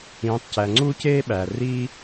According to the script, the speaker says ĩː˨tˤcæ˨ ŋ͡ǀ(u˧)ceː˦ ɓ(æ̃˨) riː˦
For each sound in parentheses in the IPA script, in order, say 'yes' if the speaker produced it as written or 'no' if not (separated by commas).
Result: no, no